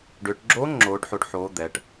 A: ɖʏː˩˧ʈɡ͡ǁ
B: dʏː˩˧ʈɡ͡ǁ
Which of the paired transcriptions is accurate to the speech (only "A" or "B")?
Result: A